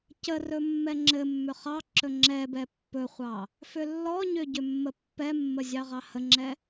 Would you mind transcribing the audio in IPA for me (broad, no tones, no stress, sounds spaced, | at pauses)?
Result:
c ə r ɵ mː ɛ ŋ͡ǁ ɘ mː ʏ χ ɑ ǁ ɵ ŋ͡ǁ ɛ b ɛ pː ɵ χʷ ɑ | f ʏ lː ɔ ɲ ʏ ɟ ʏ mː ə pː ɛ mː ə zʲ ɑ ʁ ɑ h ə ŋ͡ǁ ɛ